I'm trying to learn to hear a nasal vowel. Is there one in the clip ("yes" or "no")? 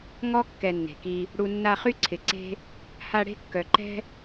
no